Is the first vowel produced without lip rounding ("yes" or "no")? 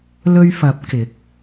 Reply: no